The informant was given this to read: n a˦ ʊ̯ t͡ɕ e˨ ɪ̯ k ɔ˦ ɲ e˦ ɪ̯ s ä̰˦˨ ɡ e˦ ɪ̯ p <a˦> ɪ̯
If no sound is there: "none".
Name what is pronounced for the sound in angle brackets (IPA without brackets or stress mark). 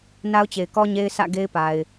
a˨